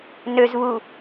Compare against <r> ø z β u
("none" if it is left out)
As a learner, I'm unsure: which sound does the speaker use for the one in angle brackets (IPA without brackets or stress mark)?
n